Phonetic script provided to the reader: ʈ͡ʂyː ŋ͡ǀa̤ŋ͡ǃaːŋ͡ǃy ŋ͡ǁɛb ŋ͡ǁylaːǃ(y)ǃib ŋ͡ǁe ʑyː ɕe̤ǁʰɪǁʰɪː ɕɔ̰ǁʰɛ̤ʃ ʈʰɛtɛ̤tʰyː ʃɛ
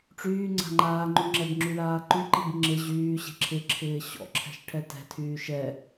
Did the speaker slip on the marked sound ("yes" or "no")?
no